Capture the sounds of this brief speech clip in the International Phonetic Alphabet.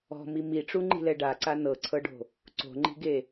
ɔ̤ m i m i ʈ͡ʂ u ŋ͡ǃ i̤ l ɛ ɖ a ǀ a n ɤ ǀʰ ɤ ɖ o̤ | ǀ o̤ ŋ͡ǃ i̤ ɡ e

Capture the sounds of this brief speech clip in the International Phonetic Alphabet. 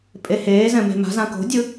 pʼ e h eː z ɛ̃ m e̤ m a̤ z ã k o̤ dʲ ɯ

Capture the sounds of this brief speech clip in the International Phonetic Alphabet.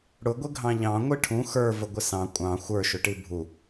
ɽ ʊ ɡʷ ɪ ɡʱ ɑ̃ ʎ ɑ̃ ŋʷ i ʈʰ ũ x ə˞ v ə ɡʷ ɪ s ɑ̃ kʷʼ ɑ̃ xʷ ə˞ ʃ ʊ ʈ i bʱ u

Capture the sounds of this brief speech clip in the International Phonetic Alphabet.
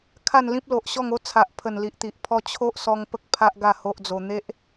kʰ a˥˧ n l ĩ˦ p̚ l o˨ ʔ ɕ ɔ˥˧ ŋ o˦ t͡sʰ a˨ ʔ pʰ ə˨˩ n l i˨ ʔ t̪ i˨ ʔ pʰ ɔ˦ t͡ɕʰ o˦ ʔ s ɔ˧ ŋ p ə˦ k̚ pʰ a˦ ʔ ɡ a˥˧ h o˦ ʔ d͡z o˧ n̪ e˦ ʔ

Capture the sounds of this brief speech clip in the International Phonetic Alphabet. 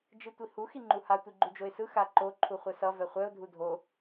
d͡ʒ ɯ tʷ i h u x i ŋ͡ǃ u h a tʷ i ɡ͡ǃ u d͡ʒ o ɪ̯ s ɯ x a ǃ o ǃʰ u χʷ ɛ s ʌ v ɛ χʷ ɛ ʊ̯ dʱ u dʱ o

